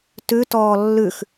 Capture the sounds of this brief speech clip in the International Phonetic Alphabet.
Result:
tʉtɔː lːʉx

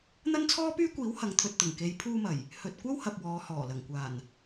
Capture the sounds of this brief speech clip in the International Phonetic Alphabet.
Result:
n̪ɐ˥nt͡sʰɔː˥pyː˥kʷiː˨˥w hɐ˨˧ŋt̪ʰɵ˨t̚t̪ʊ˨˩ŋ ke˨˧jpʰuː˧mɐ˨˩j | hɵ˨t̚ kʷɐ˥whɐ˨p̚ wɔː˨˧hɔː˨˩lɐ˨˩ŋ kʷaː˨˩n

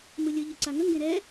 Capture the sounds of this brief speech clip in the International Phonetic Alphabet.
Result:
mɯlʲɯ ʎɯǀaŋə ŋɡẽɾɛ

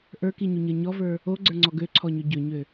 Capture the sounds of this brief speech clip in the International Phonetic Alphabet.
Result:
ʔə˞kiɲuɲə˞ ɲɔvə˞ | oɡ͡ǀə˞ŋ͡ǀɔ ɡøǀʰɔɲø ɟøɲø

